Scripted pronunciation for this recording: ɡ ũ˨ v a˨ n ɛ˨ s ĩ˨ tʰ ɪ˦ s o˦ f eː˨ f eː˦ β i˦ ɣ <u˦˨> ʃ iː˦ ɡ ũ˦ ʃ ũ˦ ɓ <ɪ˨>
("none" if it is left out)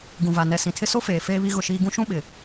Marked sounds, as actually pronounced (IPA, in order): ʊ˦˨, ɪ˨

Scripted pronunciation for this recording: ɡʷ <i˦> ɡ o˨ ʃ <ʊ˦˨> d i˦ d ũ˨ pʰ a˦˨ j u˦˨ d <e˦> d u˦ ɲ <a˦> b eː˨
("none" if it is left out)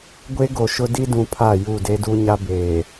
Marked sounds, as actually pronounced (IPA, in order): e˦, ʊ˦, e˦, a˦

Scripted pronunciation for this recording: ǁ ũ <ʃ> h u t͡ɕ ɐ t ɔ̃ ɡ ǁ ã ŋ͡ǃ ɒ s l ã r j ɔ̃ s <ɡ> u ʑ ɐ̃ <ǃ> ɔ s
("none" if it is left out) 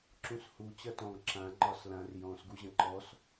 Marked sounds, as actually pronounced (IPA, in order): s, ɡ, ǃ

